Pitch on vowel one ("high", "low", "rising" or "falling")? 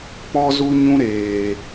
high